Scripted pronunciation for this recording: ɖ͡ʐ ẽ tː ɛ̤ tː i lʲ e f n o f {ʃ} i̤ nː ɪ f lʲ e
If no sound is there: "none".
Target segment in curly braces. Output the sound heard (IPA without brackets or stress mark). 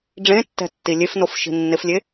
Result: ʃ